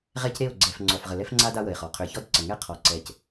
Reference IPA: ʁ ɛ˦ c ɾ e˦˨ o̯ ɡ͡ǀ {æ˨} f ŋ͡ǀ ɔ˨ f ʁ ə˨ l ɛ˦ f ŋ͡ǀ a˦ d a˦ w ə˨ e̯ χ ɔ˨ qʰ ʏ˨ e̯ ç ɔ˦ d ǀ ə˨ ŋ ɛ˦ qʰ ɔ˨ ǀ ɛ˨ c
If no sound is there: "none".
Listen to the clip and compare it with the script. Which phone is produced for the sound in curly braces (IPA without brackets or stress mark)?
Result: ɛ˨